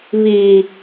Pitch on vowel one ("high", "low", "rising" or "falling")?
low